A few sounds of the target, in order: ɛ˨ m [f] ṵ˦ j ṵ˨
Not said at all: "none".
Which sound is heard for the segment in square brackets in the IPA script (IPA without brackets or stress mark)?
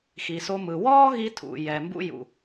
b